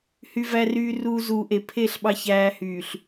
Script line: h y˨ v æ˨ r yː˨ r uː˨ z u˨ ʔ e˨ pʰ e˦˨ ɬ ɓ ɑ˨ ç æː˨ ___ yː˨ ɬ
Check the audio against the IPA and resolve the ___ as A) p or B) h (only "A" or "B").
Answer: B